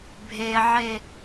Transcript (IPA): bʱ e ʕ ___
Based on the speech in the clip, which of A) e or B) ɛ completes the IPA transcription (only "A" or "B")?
A